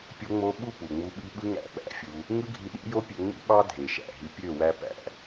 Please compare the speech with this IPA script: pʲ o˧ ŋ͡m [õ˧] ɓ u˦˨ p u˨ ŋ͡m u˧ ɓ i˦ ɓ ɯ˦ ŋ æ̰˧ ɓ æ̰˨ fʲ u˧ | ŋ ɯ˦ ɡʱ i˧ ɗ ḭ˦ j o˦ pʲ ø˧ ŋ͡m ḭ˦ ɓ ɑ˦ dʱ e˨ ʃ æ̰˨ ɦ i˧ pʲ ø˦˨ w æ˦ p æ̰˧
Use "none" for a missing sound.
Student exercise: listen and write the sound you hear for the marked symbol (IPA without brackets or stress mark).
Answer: o˧